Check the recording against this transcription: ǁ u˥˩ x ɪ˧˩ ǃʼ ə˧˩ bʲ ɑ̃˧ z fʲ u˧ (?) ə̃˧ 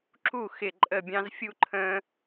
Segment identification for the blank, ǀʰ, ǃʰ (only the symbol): ǃʰ